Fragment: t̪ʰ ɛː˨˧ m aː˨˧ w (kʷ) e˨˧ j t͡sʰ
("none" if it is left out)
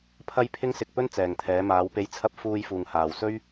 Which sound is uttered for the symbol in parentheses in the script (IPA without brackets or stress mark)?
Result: p